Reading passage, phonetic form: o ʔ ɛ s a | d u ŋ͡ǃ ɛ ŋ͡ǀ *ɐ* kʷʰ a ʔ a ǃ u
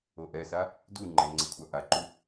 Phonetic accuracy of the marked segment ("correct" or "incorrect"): correct